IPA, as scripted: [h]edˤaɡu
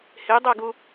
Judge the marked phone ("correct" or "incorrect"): correct